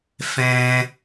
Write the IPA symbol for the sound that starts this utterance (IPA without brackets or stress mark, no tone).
f